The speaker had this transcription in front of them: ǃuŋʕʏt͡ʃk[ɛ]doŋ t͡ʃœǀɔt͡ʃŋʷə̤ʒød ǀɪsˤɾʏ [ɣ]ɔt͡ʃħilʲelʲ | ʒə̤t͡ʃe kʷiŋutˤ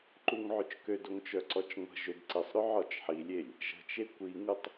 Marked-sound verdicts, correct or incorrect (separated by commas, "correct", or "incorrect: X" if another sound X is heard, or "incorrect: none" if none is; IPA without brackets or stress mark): incorrect: ø, incorrect: ʕ